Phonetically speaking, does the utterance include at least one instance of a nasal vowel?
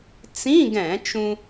yes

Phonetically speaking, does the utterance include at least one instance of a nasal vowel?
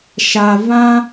yes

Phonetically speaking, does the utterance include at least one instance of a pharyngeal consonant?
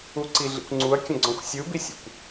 no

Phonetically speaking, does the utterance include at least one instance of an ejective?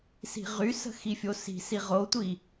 no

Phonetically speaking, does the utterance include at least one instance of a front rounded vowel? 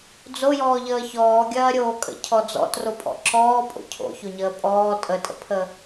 no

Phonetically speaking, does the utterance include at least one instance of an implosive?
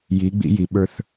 yes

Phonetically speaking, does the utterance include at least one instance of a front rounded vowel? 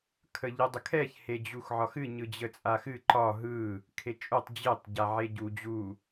no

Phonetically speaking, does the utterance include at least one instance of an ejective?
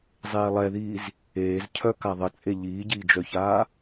yes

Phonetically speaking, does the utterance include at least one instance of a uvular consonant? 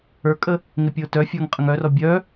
yes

